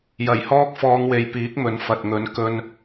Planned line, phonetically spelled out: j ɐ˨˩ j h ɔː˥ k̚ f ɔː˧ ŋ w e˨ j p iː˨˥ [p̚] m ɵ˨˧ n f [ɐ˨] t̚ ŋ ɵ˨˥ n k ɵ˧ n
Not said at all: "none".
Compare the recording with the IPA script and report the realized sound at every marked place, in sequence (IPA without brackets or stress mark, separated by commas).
k̚, ɐ˨